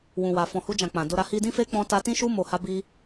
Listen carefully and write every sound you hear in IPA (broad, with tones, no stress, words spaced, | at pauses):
wũ˨wa˨ fɔ̃˨hu˧d͡ʒã˨ k͡pã˨do˧ɾa˧ hi˧dĩ˦fe˦ k͡pɔ̃˦ta˦ tĩ˦ʃu˦ mo˧ha˦bi˦